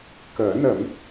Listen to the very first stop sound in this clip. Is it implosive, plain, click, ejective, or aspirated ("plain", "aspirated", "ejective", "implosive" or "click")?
plain